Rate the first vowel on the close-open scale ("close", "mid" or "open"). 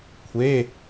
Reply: mid